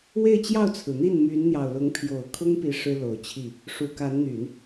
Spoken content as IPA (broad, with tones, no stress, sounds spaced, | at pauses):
w e˥˧ ɪ̯ t͡ɕ j ɑ˥˩ ʊ̯ t͡sʰ ɹ̩˩ n̪ i˥˩ n m y˧˥ n n̪ j ɑ˨˩ ʊ̯ l ʊ˧˥ ŋ pʰ j o˨˩ ʊ̯ kʰ ʊ˥ ŋ p i˧˥ ʂ ɻ̩˥ l o˨˩ ʊ̯ t͡ɕʰ i˥˩ | ʂ u˨˩ k a˧˥ n n̪ y˨˩˦ n